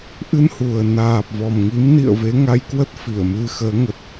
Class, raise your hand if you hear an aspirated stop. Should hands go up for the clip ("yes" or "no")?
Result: no